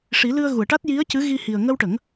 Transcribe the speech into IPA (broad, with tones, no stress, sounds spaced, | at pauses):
ʂ i˨˩˦ l ɨ˧ ə̯ ɣ u˨˩˨ ə̯ ʈ a˦˥ t̚ j i˧˥ ə̯ c ɨ˧˥ ɣ i˧ h i˨˩ ə̯ ŋ ə˧ w ʈ ə˨˩˦ ŋ